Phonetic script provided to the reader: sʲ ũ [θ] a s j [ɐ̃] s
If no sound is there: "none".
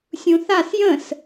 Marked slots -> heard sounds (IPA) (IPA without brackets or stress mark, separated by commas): θ, ə̃